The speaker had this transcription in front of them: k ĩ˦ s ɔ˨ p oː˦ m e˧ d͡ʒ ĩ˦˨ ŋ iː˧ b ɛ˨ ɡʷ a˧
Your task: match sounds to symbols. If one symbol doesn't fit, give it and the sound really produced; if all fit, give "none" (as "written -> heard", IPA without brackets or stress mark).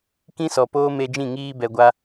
none